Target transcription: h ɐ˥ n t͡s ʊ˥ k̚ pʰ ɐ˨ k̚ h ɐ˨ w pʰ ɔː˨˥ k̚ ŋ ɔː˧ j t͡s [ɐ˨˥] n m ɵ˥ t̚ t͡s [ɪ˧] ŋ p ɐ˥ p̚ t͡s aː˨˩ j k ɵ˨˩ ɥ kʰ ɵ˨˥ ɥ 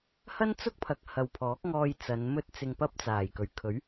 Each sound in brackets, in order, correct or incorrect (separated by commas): incorrect, correct